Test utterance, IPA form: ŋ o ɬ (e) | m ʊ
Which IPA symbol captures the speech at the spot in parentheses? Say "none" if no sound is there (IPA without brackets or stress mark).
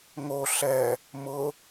ɛ